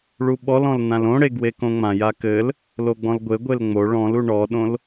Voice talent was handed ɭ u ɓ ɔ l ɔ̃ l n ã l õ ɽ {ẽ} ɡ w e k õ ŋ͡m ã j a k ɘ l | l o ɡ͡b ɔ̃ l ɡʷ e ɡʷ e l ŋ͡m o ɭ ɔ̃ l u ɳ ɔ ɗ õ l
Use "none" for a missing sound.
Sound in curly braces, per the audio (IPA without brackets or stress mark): e